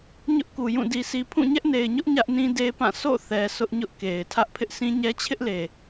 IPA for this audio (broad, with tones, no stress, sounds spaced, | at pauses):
ɲ ʊ˦ ʔ k u˨ j ũ˦˨ d i˨ sʰ i˨ pʰ ũ˦˨ ɲ ɛ˦ ʔ n e˨ ɪ̯ ɲ ʊ˦ ʔ ɲ ä˦ ʔ n ĩ˦ d e˦ p ã˦˨ sʰ o̰˦˨ θ ɛ˨ sʰ ʊ˦ ʔ ɲ ʊ˦ ʔ k e˨ ɪ̯ tʰ ä˦ ʔ pʰ ɪ˦ ʔ sʰ ĩ˦ ɲ ɛ˦ t͡ɕʰ ɪ˦ ʔ l e˨